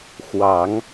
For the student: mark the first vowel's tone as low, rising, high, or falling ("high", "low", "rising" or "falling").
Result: low